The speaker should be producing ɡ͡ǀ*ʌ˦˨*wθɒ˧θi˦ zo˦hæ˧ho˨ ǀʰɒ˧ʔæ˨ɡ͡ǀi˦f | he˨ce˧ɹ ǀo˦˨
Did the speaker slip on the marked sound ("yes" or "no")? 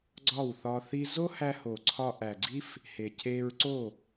yes